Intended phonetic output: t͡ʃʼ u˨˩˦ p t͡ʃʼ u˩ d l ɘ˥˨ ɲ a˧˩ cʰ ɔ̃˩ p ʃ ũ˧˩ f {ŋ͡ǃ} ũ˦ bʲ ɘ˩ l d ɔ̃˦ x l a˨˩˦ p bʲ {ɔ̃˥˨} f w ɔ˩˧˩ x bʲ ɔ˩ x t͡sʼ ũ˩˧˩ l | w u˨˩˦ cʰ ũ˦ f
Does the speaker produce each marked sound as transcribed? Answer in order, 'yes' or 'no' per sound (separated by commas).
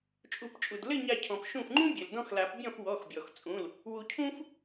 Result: yes, yes